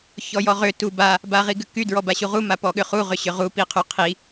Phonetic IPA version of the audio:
ç ɔ j ɔ ʁ ʏ t u b a | b a ʁ i ɡ ʏ k y d ɹ ɔ b a ɕ u ʁ u m a p ɔ ɠ ʏ χ u ʁ ʏ ɕ ʏ ʁ u p i qʰ y qʰ i

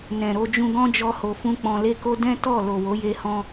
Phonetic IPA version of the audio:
n ɛ̃˨ ɾ o˧ d͡ʒ ũ˧ ɡ ɔ̃˦ d͡ʒ ɔ˦ h o˧ f ũ˦ k͡p ɔ̃˧ l e˦ k o˦ d ɛ̃˦ t ɔ˦˨ l o˨ w o˨˦ j e˧ h ɔ̃˧

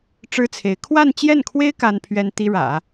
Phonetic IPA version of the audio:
ʈ͡ʂ ɻ̩˥ t͡sʰ e˧˥ ɪ̯ kʰ w a˥˧ n t͡ɕ j ɛ˥˩ n kʰ w e˥ ɪ̯ k a˥ n pʰ ɥ ɛ˥ n t̪ i˥ ɻ ä̰˨˩˦

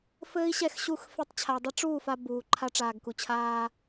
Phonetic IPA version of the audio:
f ɘː˦ i̯ ɕ ɛ˦˨ x ɕ u˦˨ x f ɛ˦ tˤ t͡ɕʰ a˨ dˤ ɘ˦ ʈ͡ʂ uː˦˨ f a˦ b uː˨ ǃʰ a˦ ʈ͡ʂ aː˨ ɡ k u˨ t͡ɕʰ aː˦

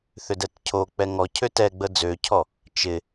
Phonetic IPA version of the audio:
θ ʏ d ɛ t cʰ o k͡p ɛ ŋ ɔ cʰ ø t ɛ ɡ͡b ə d͡z ø cʰ ɔ | t͡ʃ ɪ

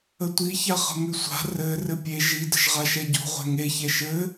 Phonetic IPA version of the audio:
ə tʷ i ç a χ ə̤ m ʉ sʷ a̤ r ɘ r ɘ pʲ e ʒ i d ə̤ ʒ ʁ a ʃ ɛ ɟ o̤ ʁʷ ɛ̤ ŋ e ç ɛ ʃ ɘ

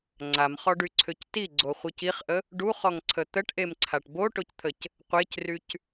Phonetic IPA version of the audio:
ŋ͡ǀ a m χ ɔ ɖ y ǀʰ ø c t i ɡ͡ǀ o χʷ i c i χ ʔ ə | ɖ u χ ɔ ŋ ǀʰ ə t̪ ə ʈ ʔ e m ǀʰ a ʈ b o ʈ o c t̪ʰ ə c | qʷ e c r y c

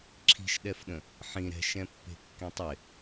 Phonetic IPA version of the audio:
ǁʰ i̤ ʃ ɗ ɛ f ɗ ə̃ | ħ ĩ ɾ ɛ̤ ʃ ɛ̃ pː e̤ kː ẽ tˤ ɪ

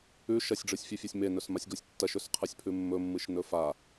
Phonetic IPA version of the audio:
ʉ ʃ ɐ sʲ ɖ͡ʐ ɨ sʲ fʲ ʉ fʲ a sʲ m e n ɵ s m a sʲ ɡ o sʲ tː ɐ ʃ ɵ s qʰ ɨ sʲ pʰ ʉ mː ɵ mː ɨ ʃ n ɵ f a

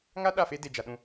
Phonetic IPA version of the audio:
ŋ a˦ ɗ a˦˨ f e˦ d e˨ d͡ʒ a˨ ɗ ũ˦˨

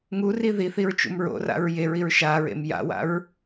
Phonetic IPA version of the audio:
ŋ u r i ð i θ i ɹ t͡ʃ ṵ m ɹ o̰ r a̰ ɹ j e ɹ i ɹ ʃ a ɹ ḛ m j a̰ w a̰ ɹ

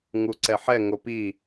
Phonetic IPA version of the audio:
ŋ u ǀ ɛ ħ ɛ ŋ o p i

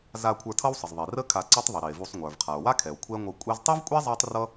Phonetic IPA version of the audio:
z a˧ kʷʰ ə˞˧ tʰ ʌ˥ w sˤ ə˩ z ðˤ i˩ r ə˥ kʰ a˧ ǀ i˥ tˤ ðˤ ə˩ ɾ i˩ e̯ v u˧ sˤ ŋʷ ə˞˩ v qʰ a˩ o̯ w a˥ kʰ ɛ˩ o̯ kʷʰ ɛ˥ ŋʷ ʌ˧ kʷʼ ɛ˥ z tˤ i˥ v kʷʼ ɛ˥ zˤ a˥ tˤ r ʌ˥

